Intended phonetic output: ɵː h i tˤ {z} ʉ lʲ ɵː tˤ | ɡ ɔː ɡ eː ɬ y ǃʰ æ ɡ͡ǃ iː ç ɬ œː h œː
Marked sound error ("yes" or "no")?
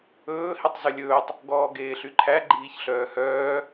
no